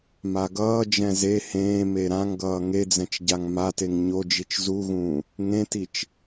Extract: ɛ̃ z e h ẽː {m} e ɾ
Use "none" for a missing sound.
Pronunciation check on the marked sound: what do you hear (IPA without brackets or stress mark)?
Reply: m